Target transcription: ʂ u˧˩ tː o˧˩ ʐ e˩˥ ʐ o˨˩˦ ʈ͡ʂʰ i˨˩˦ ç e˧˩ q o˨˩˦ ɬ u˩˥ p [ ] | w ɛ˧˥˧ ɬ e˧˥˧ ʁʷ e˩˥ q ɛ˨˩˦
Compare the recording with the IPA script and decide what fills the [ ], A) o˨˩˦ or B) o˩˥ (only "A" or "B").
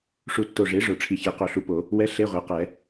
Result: A